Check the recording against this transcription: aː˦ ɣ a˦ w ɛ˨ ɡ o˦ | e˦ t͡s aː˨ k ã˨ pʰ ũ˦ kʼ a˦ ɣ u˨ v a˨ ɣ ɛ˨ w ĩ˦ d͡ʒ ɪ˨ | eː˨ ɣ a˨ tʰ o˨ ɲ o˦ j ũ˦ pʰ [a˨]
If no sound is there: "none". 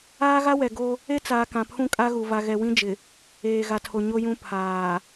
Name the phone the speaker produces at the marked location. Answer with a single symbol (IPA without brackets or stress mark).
aː˨